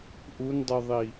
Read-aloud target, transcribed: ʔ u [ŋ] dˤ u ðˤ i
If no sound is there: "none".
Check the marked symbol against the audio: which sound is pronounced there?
n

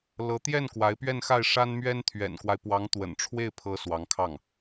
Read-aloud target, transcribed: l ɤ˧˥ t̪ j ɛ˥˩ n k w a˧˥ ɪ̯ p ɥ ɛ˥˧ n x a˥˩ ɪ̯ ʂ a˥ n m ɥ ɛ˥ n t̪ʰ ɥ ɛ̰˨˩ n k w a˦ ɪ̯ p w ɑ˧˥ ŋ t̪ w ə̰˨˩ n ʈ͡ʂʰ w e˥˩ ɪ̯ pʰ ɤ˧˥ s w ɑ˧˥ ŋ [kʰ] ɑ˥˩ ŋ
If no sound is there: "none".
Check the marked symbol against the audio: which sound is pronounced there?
kʰ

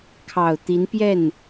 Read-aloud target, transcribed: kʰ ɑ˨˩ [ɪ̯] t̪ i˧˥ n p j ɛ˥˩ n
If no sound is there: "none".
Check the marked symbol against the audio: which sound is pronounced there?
ʊ̯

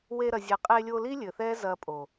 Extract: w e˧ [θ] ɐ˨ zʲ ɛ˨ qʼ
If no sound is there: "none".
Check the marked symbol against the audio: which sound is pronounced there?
ɾ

